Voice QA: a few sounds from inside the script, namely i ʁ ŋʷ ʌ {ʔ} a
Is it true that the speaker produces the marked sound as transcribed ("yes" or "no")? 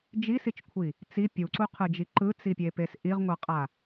no